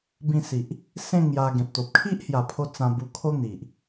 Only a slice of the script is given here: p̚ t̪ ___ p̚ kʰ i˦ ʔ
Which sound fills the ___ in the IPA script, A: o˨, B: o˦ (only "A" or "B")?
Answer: A